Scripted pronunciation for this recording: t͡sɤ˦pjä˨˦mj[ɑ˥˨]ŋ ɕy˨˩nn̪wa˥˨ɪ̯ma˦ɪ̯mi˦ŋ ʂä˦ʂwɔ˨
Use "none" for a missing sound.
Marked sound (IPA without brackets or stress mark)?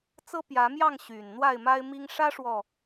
ɑ˥˨